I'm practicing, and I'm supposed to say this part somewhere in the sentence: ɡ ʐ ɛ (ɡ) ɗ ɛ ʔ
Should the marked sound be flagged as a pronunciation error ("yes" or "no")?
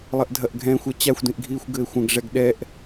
no